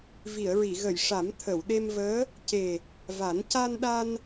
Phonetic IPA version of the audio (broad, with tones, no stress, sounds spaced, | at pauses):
v i˨˩˨ ə̯ ɹ i˨˩˨ ɣ ə˨˩˨ j ʂ a˨˩˦ m t̪ʰ ə˨˩˨ w ɗ e˧ m v əː˧˥ | c e˨˩ | v a˨˩˦ n c a˧ n ɗ a˧ n